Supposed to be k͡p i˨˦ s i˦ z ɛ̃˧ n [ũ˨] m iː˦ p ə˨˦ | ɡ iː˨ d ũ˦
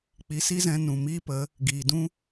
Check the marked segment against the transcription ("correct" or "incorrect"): correct